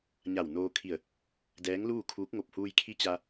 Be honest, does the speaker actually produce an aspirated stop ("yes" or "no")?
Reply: yes